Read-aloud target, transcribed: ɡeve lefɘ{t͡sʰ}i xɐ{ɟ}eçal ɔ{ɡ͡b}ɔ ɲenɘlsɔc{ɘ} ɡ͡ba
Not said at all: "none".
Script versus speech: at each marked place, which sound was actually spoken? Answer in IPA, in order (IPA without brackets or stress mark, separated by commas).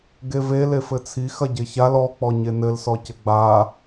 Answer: t͡sʰ, ɟ, k͡p, ɘ